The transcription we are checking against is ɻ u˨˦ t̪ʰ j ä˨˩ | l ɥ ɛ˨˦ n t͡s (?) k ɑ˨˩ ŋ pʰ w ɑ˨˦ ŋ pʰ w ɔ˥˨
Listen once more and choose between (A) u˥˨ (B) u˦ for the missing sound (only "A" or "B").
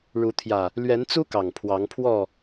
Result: B